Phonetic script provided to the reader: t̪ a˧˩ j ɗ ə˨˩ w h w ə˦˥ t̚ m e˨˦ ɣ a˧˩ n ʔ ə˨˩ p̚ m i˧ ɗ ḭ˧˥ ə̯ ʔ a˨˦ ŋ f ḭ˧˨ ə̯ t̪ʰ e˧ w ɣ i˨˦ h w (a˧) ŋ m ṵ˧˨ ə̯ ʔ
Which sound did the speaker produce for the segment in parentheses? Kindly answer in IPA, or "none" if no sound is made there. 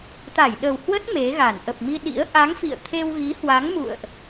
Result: a˨˦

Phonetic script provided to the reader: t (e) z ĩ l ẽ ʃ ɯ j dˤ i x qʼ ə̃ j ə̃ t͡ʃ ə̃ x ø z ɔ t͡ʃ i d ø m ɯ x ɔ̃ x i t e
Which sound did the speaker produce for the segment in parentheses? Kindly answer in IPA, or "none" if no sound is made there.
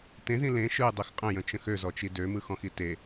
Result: ẽ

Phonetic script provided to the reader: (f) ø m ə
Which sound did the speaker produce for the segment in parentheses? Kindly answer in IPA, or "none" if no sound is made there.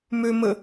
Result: m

